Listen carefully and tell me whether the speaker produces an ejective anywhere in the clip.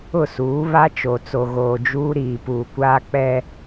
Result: no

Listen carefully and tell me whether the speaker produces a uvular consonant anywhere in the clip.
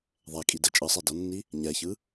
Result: no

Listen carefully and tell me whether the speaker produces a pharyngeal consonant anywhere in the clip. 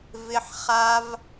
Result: yes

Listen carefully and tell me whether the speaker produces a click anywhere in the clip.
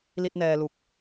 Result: no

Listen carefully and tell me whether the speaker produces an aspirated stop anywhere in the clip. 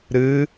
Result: no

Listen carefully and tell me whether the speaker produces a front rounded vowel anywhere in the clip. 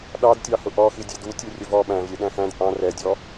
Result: no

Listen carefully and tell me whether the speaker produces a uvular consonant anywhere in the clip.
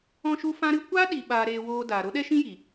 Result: no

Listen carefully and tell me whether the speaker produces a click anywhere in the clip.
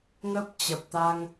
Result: no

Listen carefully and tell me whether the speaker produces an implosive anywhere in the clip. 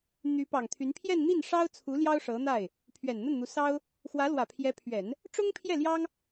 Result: no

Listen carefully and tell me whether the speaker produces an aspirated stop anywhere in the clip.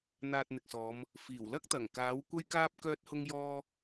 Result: no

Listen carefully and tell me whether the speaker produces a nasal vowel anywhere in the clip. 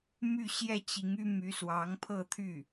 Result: no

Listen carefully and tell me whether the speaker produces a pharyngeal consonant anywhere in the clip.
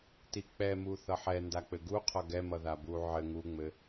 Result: yes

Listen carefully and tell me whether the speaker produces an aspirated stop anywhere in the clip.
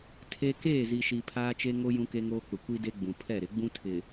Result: yes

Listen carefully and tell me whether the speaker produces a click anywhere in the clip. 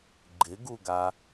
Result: yes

